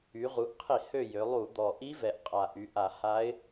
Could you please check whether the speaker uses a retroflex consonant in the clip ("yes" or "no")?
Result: no